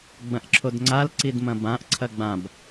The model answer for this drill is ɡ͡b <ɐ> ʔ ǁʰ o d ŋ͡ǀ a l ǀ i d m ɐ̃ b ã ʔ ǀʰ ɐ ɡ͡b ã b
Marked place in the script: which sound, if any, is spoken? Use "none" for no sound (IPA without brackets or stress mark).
ɐ̃